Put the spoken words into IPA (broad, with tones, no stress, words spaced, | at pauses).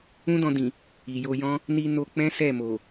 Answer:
ũ˦dɔ̃˧dĩ˨ | i˨jo˧jɔ̃˦ | ni˧no˧ k͡pɛ̃˦ sɛ˦˨ mo˨